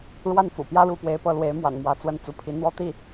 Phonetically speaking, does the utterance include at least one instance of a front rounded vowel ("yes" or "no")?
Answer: no